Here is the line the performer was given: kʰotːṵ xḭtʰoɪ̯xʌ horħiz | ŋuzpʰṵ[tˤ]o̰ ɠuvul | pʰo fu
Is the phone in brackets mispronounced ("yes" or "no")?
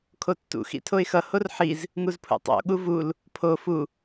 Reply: no